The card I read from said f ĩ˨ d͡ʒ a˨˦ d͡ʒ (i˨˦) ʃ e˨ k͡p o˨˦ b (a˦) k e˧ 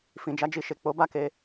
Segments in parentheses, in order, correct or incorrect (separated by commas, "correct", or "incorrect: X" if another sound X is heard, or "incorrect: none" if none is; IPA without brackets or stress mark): incorrect: i˧, correct